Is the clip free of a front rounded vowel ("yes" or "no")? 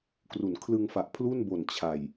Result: yes